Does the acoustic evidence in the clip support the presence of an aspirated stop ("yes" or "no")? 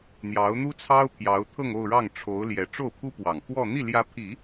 yes